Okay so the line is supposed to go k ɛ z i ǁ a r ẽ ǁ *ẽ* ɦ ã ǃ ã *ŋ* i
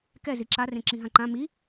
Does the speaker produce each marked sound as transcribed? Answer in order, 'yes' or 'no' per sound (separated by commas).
no, no